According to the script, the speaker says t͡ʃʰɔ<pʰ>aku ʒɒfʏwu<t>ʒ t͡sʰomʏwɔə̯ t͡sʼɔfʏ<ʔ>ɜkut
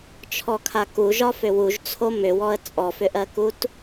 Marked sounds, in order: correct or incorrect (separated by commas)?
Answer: incorrect, incorrect, correct